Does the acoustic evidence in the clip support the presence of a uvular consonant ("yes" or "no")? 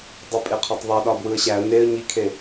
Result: yes